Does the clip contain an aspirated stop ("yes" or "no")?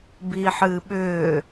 no